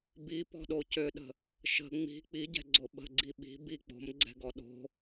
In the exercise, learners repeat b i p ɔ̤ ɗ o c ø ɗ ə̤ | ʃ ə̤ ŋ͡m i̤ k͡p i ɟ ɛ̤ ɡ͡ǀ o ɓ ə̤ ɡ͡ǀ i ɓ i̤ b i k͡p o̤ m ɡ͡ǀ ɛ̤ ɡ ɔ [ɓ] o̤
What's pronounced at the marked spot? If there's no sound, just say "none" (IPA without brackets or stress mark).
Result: ɗ